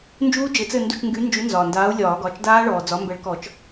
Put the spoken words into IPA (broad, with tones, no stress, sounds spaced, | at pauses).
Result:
n d͡ʒ uː˦˥ d͡ʒ ɘ˨˦ t͡s ɘ˦˨ n d u˦˨ t͡ʃ ŋ ɡ y˨˦ n d͡ʒ y˨˦ n z ɒː˩ n d aː˨˦ u̯ lʲ ɒː˨˩˦ ɡ ɒ˩˧˩ t͡ʃ d aː˦˥ ɭ ɔː˩ d͡z ɒ˨˦ m b ɛ˨˦ ɭ k ɔ˨˩˦ t͡ʃ